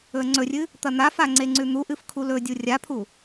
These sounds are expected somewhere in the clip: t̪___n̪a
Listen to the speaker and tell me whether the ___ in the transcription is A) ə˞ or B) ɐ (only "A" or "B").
B